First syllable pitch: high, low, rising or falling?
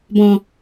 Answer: low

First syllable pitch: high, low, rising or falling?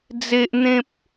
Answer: high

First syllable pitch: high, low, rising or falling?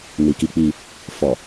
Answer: low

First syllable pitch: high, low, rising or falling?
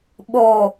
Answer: low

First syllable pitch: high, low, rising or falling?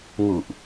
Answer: low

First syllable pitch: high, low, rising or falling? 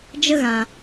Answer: high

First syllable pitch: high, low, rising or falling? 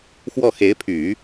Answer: falling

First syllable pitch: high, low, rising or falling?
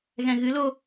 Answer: low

